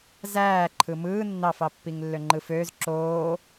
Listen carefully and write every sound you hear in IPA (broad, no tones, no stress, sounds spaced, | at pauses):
z æː ǃʰ ɯ m ɯː nː ɑ f ɑ pː i ŋ lː ø ŋ͡ǃ ɯ f øː z ǁ oː